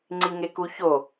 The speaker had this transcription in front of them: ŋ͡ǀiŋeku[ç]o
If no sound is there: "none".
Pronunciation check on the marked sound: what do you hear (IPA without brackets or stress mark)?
ç